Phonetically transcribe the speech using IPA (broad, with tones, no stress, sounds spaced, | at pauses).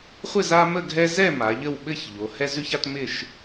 χʷ ɪ˥˨ z a˦ m ə˥˨ ɡʱ ɛ˦ z ɛ˥˨ m a˩˧ ʎ ə˥˨ w ɓ ɘ˥˨ ç ʎ o˩˧ h ɛ˦ z ʉ˦ ç a˦ t m ɪ˥˨ ʃ